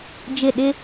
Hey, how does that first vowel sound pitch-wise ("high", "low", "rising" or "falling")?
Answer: falling